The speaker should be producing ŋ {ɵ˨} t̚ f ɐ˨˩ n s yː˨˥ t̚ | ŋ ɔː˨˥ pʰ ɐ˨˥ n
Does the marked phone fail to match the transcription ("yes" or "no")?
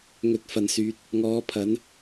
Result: no